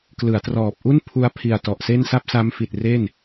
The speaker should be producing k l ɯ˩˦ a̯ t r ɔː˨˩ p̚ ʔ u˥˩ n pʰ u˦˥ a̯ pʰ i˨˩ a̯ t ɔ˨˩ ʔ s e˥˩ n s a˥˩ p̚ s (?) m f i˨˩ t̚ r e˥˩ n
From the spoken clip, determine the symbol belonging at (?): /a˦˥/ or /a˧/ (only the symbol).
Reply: a˦˥